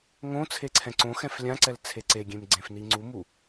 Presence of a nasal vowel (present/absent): present